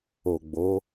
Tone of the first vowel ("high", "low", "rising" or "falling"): low